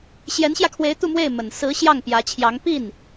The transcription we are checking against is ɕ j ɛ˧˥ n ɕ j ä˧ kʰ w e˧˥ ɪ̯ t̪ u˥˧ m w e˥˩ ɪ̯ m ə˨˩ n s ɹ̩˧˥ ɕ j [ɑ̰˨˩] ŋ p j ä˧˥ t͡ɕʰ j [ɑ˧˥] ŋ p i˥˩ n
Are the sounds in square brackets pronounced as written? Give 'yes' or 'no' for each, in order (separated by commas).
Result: no, yes